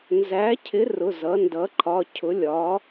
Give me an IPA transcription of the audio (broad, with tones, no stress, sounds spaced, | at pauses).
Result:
n z æ˧˥ cʰ ɪ˧˥ r ʊ˧˥˧ z ʌ˧˥ n d ʌ˧˥ ǃʰ ɒ˧˥˧ cʰ ʊ˧˥ lʲ ɒ˧˥